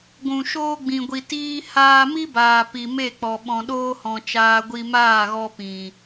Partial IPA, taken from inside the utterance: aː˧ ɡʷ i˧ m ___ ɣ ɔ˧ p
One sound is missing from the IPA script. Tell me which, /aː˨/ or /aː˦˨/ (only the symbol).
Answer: aː˦˨